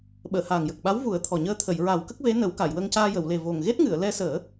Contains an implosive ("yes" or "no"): yes